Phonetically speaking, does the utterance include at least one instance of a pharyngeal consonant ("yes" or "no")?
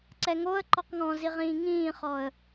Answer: no